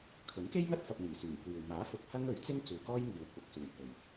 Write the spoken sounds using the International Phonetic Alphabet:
kʰɵ˨˥nke˥jŋɐ˥t̚ fɐ˧p̚n̪iː˨˩syː˨˩ŋkʷiː˨w maː˨˥fʊ˨k̚ hɐ˥ŋ ɵ˨˥ɥt͡sɪ˥ŋ t͡suː˨kɔː˥jŋiː˨w kʷɐ˧k̚suː˨j pɵ˨ɥ

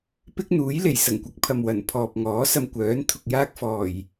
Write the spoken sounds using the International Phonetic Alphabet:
pɪ˥k̚n̪uː˨˥j le˨˩jsɐ˨˩ŋkʷɐ˨˥k̚ pʰɐ˨mwɐ˨˩npʰɔː˨p̚ŋɔː˨˥ sɐ˧mkʷœː˨˥n t̪ʰʊ˨k̚jaː˥k̚fɔː˨˩j

